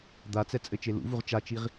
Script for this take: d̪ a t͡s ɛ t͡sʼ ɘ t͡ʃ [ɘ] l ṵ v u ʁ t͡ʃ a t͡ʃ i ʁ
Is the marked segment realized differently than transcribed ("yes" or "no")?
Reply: yes